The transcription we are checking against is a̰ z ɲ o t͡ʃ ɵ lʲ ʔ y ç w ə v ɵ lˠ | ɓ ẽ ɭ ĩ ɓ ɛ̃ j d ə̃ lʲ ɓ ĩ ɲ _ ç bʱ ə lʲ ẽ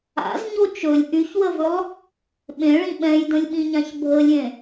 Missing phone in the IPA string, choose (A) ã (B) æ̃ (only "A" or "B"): A